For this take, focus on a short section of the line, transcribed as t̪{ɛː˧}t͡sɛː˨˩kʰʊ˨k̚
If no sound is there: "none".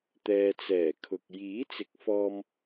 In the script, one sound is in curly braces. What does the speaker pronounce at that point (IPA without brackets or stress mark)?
ɛː˨